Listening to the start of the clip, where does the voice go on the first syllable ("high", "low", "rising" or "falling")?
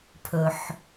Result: low